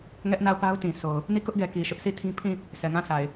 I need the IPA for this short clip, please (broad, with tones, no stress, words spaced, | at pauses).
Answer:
ŋɛ˦ʔna˦˨ʊ̯pa˦ʊ̯tĩ˨ so˨ʊ̯ | ni˦˨kʊ˦ʔɡɛ˨ ki˨ʃʊ˦ʔsʰi˦˨tʰĩ˦ pʰĩ˦˨ | sɛ˨ŋã˦˨sa˨ɪ̯